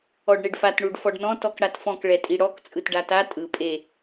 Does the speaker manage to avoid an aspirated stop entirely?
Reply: yes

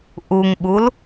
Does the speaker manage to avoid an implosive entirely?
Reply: no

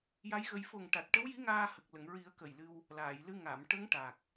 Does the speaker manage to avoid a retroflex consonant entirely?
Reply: no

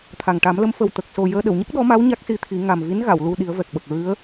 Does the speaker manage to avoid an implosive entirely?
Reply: no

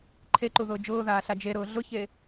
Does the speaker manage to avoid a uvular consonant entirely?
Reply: yes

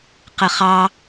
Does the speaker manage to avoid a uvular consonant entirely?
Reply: no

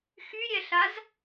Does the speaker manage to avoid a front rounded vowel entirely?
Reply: no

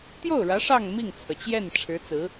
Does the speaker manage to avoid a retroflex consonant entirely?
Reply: no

